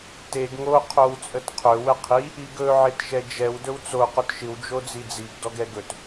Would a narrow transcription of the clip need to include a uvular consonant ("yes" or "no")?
yes